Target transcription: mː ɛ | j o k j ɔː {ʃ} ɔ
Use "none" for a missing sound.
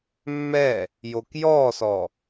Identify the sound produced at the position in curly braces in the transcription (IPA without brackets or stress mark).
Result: s